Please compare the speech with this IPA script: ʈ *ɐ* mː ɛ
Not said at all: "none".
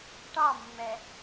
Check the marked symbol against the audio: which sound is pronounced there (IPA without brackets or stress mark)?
ɑ